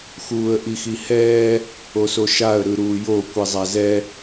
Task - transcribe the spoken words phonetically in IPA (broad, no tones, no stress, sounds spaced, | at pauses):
x uː ə̯ ʔ i x i h ɛː | o s o ʃ a ə̯ ɾ ɯ ɾ uː j o kʷ i zˤ a z ɛ